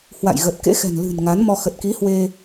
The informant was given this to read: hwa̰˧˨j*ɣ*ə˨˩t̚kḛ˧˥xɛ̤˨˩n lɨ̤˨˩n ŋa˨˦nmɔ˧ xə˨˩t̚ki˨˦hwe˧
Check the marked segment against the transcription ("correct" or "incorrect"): correct